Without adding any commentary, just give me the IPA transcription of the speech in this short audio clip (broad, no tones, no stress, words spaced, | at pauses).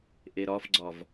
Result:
ʔeɾɒfɡ͡ǀɒv